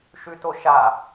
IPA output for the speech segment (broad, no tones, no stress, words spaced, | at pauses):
ʃʉtoʃa